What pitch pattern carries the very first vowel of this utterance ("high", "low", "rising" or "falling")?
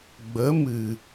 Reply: rising